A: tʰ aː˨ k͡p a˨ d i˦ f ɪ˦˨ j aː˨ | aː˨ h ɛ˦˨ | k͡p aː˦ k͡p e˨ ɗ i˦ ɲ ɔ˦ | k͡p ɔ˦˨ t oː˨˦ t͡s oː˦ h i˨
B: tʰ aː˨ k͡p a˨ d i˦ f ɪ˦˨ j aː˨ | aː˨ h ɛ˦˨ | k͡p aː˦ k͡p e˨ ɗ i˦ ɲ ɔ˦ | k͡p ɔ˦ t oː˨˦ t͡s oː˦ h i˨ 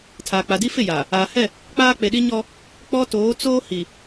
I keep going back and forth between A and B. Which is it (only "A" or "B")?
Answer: B